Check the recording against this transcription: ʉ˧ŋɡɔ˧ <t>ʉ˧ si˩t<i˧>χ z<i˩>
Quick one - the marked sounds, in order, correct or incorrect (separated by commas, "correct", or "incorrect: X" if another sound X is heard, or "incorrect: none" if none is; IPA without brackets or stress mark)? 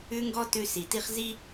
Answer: correct, incorrect: i˥, incorrect: i˥